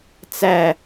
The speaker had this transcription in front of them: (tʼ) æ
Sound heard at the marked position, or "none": t͡s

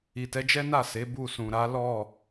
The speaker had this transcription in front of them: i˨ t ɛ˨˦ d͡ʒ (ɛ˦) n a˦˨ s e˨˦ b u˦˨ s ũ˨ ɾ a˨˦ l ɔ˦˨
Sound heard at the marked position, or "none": ɛ˦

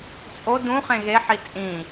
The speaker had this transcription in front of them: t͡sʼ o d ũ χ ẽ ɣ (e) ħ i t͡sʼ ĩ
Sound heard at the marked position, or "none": e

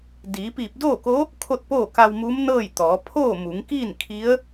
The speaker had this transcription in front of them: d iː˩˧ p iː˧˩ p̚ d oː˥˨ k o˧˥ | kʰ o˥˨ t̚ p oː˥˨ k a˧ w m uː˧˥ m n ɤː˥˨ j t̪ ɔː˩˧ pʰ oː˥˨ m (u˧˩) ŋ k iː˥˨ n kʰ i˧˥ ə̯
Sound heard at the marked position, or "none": u˩˧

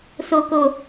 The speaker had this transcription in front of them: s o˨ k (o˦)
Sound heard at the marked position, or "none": o˨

